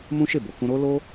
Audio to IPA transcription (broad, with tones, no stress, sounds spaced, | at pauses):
m ũ˦ ʃ e˦˨ b o˨ k ũ˧ ɾ o˦ l o˦